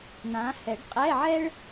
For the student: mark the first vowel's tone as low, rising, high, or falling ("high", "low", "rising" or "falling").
rising